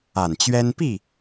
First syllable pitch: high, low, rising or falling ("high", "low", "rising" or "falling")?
low